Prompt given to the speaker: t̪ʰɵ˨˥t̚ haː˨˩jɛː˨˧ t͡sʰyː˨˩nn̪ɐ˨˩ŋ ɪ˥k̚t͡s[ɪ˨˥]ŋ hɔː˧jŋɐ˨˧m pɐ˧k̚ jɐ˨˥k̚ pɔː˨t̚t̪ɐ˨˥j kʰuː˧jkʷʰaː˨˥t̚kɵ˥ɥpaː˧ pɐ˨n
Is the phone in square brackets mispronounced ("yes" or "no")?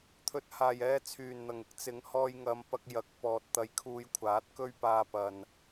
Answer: no